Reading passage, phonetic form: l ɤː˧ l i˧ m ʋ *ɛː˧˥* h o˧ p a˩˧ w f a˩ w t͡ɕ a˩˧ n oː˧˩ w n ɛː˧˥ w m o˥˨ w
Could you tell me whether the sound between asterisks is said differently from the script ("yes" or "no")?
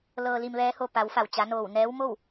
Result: no